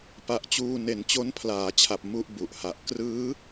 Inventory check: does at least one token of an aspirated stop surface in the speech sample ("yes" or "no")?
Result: yes